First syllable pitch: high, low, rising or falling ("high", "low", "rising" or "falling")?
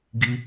high